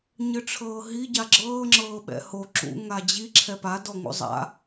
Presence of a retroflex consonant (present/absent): present